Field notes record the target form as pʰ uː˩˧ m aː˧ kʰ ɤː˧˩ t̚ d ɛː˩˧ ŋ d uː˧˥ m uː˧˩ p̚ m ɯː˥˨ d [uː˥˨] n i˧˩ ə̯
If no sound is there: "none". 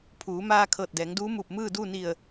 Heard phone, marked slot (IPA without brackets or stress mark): uː˥˨